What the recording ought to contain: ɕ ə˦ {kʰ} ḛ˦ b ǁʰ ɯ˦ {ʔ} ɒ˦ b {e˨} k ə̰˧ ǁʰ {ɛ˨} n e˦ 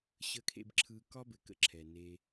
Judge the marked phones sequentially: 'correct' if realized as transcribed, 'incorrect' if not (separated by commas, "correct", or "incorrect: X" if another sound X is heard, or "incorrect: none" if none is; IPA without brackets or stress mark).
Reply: correct, incorrect: k, incorrect: ɘ˨, correct